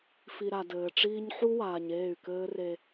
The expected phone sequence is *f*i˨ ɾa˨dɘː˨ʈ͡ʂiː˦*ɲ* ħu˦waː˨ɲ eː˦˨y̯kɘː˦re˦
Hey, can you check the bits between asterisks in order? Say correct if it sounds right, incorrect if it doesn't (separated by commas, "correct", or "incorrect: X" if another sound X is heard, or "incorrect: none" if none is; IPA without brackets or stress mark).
correct, correct